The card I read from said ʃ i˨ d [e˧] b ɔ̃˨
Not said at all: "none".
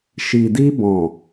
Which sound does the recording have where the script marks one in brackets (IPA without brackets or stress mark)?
i˧